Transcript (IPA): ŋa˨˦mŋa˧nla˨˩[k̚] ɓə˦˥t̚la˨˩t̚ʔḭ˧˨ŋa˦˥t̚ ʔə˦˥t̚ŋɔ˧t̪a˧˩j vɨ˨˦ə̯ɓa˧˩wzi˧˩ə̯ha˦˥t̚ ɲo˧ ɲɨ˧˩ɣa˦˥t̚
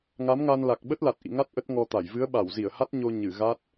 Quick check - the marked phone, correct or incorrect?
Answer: correct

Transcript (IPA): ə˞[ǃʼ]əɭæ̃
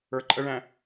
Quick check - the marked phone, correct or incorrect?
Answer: correct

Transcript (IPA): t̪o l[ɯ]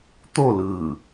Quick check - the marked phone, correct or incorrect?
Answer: correct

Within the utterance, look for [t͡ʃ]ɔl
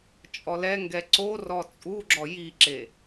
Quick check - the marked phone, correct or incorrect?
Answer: incorrect: t͡ʃʼ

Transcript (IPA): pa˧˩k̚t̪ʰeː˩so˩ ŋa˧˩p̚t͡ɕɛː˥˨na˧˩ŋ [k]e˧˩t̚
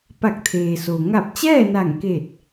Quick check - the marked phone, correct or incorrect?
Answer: correct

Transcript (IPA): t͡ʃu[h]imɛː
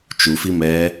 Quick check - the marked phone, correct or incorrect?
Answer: incorrect: f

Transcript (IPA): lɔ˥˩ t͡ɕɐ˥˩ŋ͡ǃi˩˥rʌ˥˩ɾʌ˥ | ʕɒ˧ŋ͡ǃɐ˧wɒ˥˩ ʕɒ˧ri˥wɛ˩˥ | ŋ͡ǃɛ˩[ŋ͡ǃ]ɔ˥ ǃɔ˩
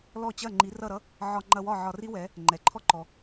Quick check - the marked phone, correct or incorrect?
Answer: incorrect: ǃʰ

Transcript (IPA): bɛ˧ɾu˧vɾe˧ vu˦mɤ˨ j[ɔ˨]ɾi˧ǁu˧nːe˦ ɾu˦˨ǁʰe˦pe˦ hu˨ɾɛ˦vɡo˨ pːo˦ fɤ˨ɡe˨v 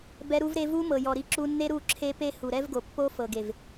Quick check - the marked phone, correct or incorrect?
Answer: correct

